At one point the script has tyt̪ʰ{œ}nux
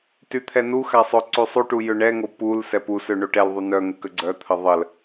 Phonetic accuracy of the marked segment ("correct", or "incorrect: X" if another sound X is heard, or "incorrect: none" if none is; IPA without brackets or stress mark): incorrect: ɛ